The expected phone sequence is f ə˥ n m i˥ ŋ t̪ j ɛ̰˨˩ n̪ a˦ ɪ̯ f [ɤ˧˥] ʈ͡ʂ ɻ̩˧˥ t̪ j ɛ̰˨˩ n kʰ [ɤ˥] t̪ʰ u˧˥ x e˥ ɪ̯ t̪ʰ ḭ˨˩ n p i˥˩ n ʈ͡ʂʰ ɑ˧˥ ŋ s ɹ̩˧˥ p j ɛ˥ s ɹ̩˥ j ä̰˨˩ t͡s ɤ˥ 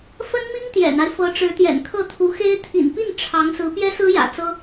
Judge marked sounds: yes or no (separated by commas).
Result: yes, no